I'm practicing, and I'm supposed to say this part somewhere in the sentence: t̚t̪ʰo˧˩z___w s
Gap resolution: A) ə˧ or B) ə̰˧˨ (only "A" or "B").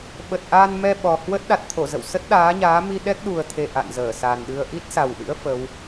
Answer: B